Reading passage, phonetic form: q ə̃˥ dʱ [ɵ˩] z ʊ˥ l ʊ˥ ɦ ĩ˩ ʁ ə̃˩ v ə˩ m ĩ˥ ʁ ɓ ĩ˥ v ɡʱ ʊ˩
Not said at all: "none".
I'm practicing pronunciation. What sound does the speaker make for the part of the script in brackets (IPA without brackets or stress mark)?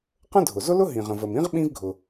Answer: ʊ˩